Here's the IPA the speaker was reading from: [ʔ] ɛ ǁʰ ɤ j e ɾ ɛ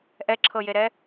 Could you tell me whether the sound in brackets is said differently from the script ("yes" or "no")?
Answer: no